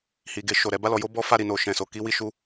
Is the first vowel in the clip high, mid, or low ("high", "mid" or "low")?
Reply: high